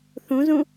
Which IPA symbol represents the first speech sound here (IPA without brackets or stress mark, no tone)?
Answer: θ